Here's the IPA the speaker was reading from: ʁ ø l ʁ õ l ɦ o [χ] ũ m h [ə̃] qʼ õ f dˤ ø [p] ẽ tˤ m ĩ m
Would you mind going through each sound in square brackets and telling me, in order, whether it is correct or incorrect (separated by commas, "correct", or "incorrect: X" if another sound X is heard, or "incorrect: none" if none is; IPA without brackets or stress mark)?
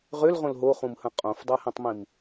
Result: correct, correct, incorrect: h